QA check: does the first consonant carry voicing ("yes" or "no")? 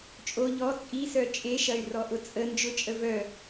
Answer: no